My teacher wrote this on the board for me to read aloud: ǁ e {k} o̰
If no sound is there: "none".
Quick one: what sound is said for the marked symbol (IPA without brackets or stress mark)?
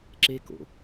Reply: k